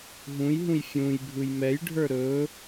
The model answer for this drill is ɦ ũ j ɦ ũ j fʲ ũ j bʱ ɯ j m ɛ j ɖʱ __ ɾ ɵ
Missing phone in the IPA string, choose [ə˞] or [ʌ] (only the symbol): ə˞